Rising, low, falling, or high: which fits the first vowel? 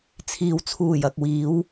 low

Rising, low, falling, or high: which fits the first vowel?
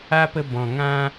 high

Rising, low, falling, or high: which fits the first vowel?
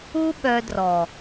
high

